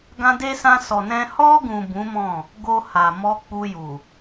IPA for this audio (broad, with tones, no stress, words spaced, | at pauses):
ɡã˧de˧sã˧ sɔ˨nɛ̃˧ hɔ˧ɡũ˨ bũ˨˦ mɔ̃˦˨ | ɡo˧ ha˨mɔ˧ k͡pu˧ju˨